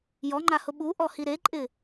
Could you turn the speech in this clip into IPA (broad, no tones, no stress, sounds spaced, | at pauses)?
j ɔ ŋ͡ǃ a h ʊ ɓ u ʔ ɔ h i ɾ e ǃʼ ɪ